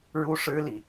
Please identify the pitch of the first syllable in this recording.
high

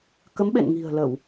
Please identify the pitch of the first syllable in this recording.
rising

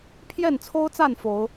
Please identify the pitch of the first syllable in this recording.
falling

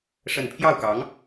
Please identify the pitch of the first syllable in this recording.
falling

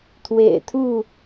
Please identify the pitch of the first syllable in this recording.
low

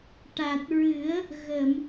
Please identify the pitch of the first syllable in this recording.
low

